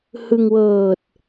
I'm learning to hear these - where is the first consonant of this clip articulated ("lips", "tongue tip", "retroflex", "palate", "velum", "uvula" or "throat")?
throat